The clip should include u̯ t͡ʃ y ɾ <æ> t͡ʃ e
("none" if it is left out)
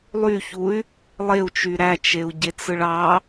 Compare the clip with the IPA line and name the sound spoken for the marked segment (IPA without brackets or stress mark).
æ